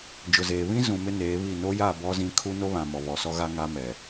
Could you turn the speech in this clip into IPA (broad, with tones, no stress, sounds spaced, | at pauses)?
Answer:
d͡ʒ ʊ˨ z eː˨ β ĩ˦ z ũ˨ m ɪ˦ n eː˨˦ β i˦˨ n o˦ j a˦˨ b ɔ˦ z ĩ˦ kʰ u˦ n o˦ β ã˨ m ɔ˨ β ɔ˨ s ɔ˦ ɣ a˦ ŋ a˦ m ɛ˨